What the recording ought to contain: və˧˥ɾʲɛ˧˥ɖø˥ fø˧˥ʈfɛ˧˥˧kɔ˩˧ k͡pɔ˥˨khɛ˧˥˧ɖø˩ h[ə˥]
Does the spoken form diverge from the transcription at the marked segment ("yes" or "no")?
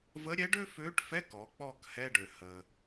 yes